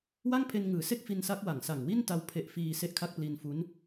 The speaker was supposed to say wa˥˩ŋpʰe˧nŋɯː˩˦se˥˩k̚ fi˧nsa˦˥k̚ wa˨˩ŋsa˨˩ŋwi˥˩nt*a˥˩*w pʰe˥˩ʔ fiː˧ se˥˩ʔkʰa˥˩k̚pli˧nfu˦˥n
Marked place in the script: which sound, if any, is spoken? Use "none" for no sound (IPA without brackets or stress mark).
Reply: a˧